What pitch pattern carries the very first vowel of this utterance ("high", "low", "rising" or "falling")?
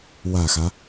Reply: low